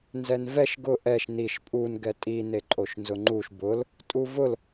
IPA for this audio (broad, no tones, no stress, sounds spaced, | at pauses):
n z ɛ n v ɛ ʃ ɡ ʊ ʔ ɛ ʃ n i ʃ pʼ u n ɡ ɛ tʼ i n e ǃʼ o ʃ n z ʊ ŋ͡ǃ u ʃ b ʊ l | tʼ u v ʊ l